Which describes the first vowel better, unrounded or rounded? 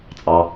unrounded